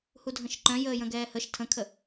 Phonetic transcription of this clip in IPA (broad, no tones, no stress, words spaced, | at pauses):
hudʱə̃ʃǃœ̃ jəːjə̃ɡɛːhəʃ tʰə̃kʰə